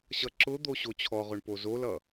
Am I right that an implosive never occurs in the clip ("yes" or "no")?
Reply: yes